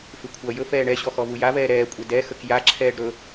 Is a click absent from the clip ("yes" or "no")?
no